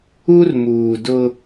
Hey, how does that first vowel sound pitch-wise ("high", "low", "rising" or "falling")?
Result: high